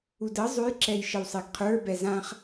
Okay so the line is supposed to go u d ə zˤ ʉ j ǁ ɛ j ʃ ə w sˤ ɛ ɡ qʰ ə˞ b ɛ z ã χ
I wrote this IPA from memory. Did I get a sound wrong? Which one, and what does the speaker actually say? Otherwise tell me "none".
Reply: none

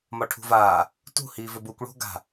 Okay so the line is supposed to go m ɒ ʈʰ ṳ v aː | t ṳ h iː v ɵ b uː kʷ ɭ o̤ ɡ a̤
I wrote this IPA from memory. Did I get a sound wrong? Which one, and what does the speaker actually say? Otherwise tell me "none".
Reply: none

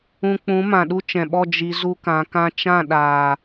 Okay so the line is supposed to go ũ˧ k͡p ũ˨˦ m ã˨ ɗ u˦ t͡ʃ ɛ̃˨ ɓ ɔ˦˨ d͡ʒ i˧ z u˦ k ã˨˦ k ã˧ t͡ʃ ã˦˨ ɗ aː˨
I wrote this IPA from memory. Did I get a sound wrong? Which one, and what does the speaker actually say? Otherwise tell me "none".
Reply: none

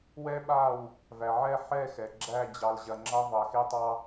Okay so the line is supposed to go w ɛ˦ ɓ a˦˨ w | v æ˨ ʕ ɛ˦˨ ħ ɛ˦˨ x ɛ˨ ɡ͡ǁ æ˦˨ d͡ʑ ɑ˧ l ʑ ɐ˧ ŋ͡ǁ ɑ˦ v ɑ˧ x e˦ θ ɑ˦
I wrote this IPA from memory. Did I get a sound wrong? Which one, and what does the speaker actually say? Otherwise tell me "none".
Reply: θ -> tˤ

